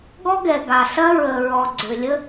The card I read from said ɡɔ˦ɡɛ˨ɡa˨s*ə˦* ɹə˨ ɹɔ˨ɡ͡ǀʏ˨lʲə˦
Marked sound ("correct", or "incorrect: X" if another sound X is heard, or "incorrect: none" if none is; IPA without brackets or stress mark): incorrect: ɐ˦